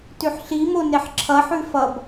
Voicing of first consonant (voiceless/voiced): voiceless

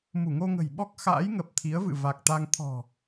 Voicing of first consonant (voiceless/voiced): voiced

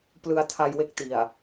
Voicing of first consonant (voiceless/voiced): voiceless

